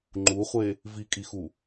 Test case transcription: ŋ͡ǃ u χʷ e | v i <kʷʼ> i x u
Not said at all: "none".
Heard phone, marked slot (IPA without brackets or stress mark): kʼ